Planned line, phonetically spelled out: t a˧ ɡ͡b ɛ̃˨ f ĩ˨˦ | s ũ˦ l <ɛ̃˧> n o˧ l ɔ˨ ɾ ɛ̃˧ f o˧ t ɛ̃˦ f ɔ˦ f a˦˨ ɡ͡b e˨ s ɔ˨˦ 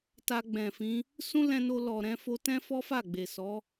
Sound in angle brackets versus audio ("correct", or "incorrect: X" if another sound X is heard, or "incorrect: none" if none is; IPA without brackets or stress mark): correct